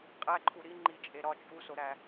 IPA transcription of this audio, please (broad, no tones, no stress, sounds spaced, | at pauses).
qʼ æ ǃʰ u ɾ i ŋ͡ǃ i t͡ʃʼ e ɾ ɒ t͡ʃʼ u s o ɾ æ